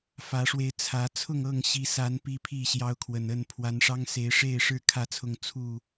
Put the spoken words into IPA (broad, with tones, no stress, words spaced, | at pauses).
fä˨˦ʂwe˧ɪ̯t͡sʰä˨˦ t͡sʰʊ˥˨ŋɤ˥˨ŋɕi˨˦sa˨˦n pi˦pʰi˥˨ɕjɑ˦ʊ̯kʰwə˨˩n ə˥˨n pʰwa˨˦nʂɑ˦ŋ se˨˦ɪ̯ʂe˥˨ɪ̯ʂɻ̩˥˨ kʰä˥˨t͡sʰʊ˥˨ŋ t͡sʰu˥˨